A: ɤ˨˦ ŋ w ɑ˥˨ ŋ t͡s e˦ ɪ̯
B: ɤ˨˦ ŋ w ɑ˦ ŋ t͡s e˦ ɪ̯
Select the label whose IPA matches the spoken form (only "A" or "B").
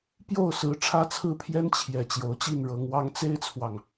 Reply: B